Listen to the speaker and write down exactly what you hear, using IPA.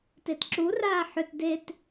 t e t ǁ u r aː ħ ʏ t d e t

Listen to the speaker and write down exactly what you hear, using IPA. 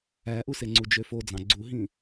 æ ʔ u s e ŋ͡ǀ u d͡ʒ ø f o d͡z ɑ̃ ɡ͡ǀ u ɦ ĩ

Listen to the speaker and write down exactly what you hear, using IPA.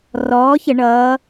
r ɔː˨˥ ç ə˧˩˧ ɳ ʌː˨˥

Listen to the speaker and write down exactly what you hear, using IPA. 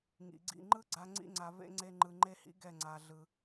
ŋ ḭ˨ ɡ͡ǀ ḭ˦˨ ŋ͡ǃ ɯ˦ ɡ͡ǀ a˧ ŋ͡ǀ ḭ˧ ŋ͡ǀ a˨ v ḛ˧ ŋ͡ǀ e˧ ŋ͡ǃ ɯ˨ ŋ͡ǃ e˦ h ḭ˦ ɡ ɛ˦˨ ŋ͡ǀ a˧ ɮ ɯ˧

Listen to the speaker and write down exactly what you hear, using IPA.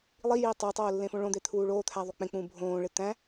lˠ i j iː tˤ o tˤ oː lː ẽ f õ ɭ õ d̪ e t̪ʰ uː ɭ oː t̪ʰ æ ðˤ u k͡p ẽ k͡p ũː bʱ õː ɭ e t̪ æ̃

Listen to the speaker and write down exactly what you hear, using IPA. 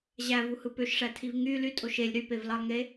ʑ æ v u h ɯ p ø ʃ ʂ æ tʰ i v ŋ y l y tʼ o ʃ e lʲ ɾ y p e v l ɑ lˠ ŋ e

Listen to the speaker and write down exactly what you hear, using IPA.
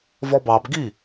v ɔ b ɑ b ɡ i

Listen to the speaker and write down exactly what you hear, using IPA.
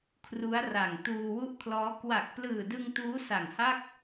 kʰ r u˦˥ a̯ r a˨˩ ŋ t uː˧ w u˥˩ ʔ kʰ l ɔː˦˥ k w a˨˩ k̚ p l ɯː˨˩ d ɯ˧ ŋ t uː˦˥ s a˨˩ ŋ h a˥˩ k̚

